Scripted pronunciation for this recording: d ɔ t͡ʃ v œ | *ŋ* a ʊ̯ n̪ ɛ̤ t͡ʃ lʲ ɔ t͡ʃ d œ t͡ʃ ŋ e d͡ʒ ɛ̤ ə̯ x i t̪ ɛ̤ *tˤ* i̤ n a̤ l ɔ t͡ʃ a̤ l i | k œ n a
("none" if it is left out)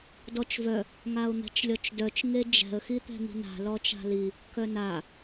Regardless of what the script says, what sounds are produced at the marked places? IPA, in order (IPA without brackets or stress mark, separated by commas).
ŋ, n̪